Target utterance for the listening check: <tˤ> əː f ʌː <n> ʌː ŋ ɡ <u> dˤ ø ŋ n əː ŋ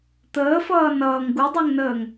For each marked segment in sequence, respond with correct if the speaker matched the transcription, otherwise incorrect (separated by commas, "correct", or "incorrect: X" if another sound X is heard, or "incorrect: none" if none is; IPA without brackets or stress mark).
incorrect: t̪, correct, correct